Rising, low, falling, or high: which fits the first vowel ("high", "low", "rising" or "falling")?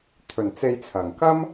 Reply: low